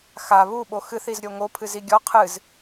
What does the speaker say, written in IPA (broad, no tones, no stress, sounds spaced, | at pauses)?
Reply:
x a β u ɓ o x ɨ θ i z ɾʲ o ŋ o pʰ ɨ z i ɡʲ ɔ qʰ ɨ z